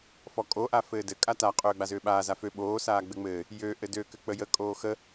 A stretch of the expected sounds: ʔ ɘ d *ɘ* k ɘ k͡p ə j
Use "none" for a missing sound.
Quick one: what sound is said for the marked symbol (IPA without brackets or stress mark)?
ø